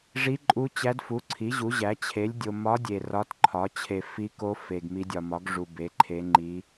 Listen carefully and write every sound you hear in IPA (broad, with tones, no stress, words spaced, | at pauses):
ʐi˧˥ǃʼu˧˥t͡ɕæ˧˥dfu˩˥ ǀʰi˩˥ ʑu˩˥ʑæ˩˥ t͡ɕʰe˩˥lʲdʲo˨ mɒ˧˥dʲe˨ rɒ˧˥tǃʰɒ˩˥ t͡ɕʰe˨ fi˧˥ko˧˥ fe˨ɡmi˧˥dʲɒ˨ mɒ˩˥ɡʐu˨ be˩˥ǃʰe˧˥ŋ͡ǃi˧˥